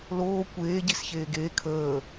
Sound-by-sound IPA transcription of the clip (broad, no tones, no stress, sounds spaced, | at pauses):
l oː kʷ eː ɟ i s ç eː ɡ eː kʰ əː